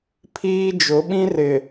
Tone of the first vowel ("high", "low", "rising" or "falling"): high